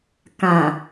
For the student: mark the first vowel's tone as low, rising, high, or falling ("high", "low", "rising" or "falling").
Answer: low